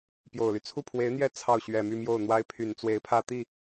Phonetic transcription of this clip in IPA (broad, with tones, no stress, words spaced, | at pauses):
pjo˨˩ʊ̯ly˦ t͡sʰu˥˩pʰwe˧˥ɪ̯n̪jɛ˥ t͡sʰɑ˥˩ʊ̯ ɕɥɛ˨˩my˥˧mjo˥˩ʊ̯n̪wa˥ɪ̯ pʰy˨˩nt͡swe˧˥ɪ̯pʰä˥˧t̪i˥˩